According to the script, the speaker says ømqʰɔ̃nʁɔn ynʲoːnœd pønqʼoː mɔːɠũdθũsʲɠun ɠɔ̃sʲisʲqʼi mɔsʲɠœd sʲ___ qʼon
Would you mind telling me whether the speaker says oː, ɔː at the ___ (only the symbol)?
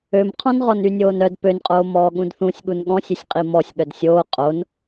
oː